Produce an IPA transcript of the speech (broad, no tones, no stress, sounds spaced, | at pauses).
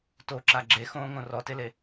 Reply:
t o ǁ a ɡ͡ǁ e x õː ŋ õ r ɔ t e l e